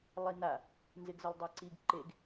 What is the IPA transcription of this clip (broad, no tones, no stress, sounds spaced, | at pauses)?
lˠ i n a | n z ɪ ɡ z ʊ lˠ dˤ a ǀ i ɡ ǃ e ɡ